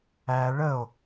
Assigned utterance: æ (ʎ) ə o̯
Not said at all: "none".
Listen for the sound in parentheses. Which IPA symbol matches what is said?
ɭ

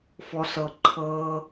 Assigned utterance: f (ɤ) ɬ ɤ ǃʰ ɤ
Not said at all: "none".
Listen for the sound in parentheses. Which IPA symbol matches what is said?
ɔ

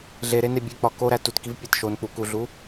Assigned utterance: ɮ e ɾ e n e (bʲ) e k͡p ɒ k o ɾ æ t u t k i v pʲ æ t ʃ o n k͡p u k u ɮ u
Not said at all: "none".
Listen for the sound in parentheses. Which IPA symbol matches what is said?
bʲ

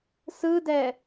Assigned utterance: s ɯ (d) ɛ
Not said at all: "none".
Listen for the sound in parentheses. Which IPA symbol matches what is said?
d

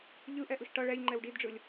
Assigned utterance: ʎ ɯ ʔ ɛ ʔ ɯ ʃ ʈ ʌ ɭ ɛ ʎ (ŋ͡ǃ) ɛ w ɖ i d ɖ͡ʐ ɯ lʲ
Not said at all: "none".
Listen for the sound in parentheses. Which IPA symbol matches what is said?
ŋ͡ǃ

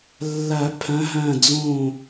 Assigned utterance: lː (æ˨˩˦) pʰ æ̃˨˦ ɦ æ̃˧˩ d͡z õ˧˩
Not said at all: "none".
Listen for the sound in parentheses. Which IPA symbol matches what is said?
æ˨˩˦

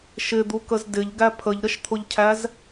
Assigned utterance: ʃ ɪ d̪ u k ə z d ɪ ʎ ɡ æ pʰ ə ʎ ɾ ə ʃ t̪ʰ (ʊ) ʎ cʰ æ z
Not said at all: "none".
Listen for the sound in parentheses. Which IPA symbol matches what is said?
ʊ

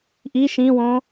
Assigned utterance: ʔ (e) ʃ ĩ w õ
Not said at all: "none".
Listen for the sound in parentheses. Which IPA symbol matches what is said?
i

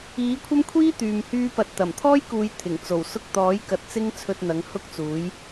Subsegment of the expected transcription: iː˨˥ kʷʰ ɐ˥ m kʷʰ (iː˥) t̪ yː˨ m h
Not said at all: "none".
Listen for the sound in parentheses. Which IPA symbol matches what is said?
iː˥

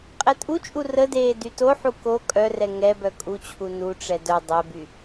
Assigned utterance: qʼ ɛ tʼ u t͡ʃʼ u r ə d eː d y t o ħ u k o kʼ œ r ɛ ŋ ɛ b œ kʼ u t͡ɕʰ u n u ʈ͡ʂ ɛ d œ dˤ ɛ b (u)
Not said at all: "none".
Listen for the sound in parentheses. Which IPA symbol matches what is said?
y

